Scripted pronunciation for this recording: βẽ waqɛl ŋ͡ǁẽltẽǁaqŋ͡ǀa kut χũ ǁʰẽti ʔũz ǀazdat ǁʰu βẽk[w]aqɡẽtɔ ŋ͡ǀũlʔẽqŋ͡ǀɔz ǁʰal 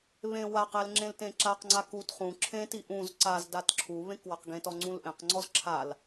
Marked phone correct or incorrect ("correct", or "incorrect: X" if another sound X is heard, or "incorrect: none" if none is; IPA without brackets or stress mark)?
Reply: correct